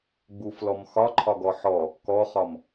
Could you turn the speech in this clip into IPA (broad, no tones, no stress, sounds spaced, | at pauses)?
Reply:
ɡ͡b u f l ɔ m x ɒ ǃʰ ɒ ɡ ɔ ħ ɔ | k ɔ χ ɒ m